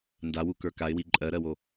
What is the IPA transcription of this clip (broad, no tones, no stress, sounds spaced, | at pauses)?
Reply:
n d a w u k ə˞ k a ɪ̯ w i ǃʼ ɜ ɾ ɜ w o